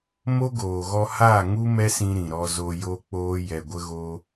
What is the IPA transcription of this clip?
m o˦ ɡ oː˨ ɣ ɔ˧ h a˦˨ ŋ u˦ m ɛ˦ s ĩ˧ ɾ ĩ˨ ɾ ɔ˧ z o˧ j o˦ k͡p oː˦ j ɛ˨ ɡʷ ə˧ ɣ o˦

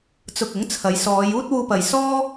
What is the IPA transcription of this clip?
t͡s ʊ˧ k̚ ʊ˨˥ ŋ t͡sʰ ɐ˨˧ j s ɔː˨˧ j uː˥ t̚ w uː˧ p ɐ˨ j s ɔː˥

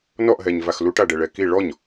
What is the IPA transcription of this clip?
n ɔ ʔ ɦ ɛ ɲ v a x l u ʈ a ɖ ɛ ɭ ɛ k i ɭ ɔ ɲ

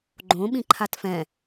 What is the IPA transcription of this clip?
ɡ͡ǃ õ ɓ ĩ ǃʰ a t f ɛ̃

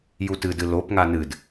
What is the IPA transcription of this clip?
j u t ɨ d ɨ l o p ŋ a n ɨ d

